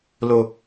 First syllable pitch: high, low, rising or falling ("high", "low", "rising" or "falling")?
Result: low